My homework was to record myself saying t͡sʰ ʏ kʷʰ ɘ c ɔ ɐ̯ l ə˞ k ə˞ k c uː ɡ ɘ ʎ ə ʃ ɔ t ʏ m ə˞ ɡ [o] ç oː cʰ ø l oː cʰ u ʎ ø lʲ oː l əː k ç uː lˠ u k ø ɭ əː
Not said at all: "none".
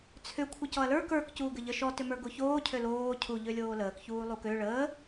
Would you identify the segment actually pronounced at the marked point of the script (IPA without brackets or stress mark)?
o